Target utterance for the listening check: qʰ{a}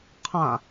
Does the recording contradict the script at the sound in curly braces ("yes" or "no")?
yes